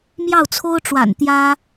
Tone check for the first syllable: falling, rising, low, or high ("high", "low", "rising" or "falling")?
falling